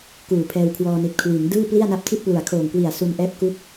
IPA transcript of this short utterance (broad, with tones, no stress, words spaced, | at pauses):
kuː˨˩pʰɛː˧wkʰwɔː˧ ni˨˩t̚kʰwiː˩˦ŋ dɯː˥˩pli˥˩a̯na˦˥p̚ tʰi˥˩t̚ plu˨˩a̯kʰoː˨˩ŋ kwi˨˩a̯su˧nʔɛː˦˥p̚ ku˥˩k̚